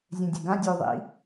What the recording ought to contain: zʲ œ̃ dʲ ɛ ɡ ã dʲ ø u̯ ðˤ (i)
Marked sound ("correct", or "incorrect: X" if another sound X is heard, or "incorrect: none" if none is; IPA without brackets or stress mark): incorrect: ḭ